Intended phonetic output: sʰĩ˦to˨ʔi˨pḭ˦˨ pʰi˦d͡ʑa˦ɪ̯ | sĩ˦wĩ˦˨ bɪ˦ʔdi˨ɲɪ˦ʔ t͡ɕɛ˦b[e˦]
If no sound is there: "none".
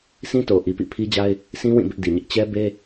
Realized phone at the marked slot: e˦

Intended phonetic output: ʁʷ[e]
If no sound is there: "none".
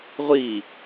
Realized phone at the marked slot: i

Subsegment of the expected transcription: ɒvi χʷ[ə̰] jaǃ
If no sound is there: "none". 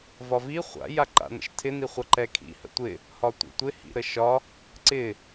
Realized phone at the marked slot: a̰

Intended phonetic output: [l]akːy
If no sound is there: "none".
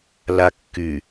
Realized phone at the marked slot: l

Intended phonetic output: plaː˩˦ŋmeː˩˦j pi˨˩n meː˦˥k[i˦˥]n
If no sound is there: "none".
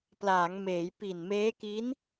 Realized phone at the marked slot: i˦˥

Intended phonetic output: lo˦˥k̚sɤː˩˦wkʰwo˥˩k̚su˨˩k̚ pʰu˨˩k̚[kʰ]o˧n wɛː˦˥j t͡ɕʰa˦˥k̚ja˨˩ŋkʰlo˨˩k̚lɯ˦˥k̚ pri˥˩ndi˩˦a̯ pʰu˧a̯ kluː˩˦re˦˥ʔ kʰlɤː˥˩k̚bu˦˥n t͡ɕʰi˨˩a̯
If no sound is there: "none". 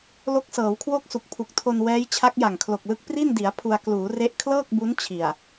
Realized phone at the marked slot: tʰ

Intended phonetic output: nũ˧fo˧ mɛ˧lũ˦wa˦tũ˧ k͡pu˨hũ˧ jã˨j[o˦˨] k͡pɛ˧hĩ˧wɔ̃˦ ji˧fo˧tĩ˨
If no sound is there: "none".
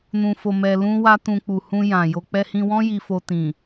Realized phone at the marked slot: o˧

